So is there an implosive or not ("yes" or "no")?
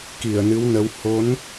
no